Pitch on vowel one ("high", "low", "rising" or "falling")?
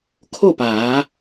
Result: falling